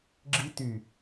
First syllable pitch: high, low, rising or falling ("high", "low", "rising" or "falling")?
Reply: high